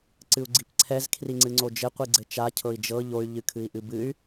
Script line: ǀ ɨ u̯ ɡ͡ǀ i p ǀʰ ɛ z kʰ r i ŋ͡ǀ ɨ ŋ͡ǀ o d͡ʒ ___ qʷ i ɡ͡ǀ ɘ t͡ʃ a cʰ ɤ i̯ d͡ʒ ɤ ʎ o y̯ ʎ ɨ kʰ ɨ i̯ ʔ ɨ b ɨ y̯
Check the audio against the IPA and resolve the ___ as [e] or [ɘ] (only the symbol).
ɘ